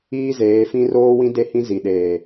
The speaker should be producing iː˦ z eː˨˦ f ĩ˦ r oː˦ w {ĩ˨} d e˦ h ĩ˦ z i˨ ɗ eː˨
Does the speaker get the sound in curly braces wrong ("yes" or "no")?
yes